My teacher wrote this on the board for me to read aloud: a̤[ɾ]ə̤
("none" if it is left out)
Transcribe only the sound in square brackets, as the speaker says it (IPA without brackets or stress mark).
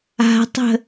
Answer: tˤ